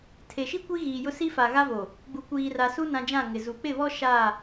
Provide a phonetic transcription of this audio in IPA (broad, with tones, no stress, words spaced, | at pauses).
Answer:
tʰe˨ʃi˦ kʷi˦ ɣiː˨jʊ˦ si˦fa˨ɣa˦vo˨ | ɡ͡bu˨ kʷiː˨ra˨su˦ nã˨ d͡ʒã˦˨ ŋɪ˨ zu˨ k͡pɪ˦˨βɔ˦ ʃa˦˨